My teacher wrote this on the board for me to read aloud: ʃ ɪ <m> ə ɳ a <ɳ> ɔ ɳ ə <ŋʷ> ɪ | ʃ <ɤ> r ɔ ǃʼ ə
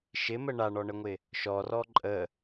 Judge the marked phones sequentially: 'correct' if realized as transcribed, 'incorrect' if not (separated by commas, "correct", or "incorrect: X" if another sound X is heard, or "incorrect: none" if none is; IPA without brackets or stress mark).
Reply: correct, correct, correct, incorrect: ɔ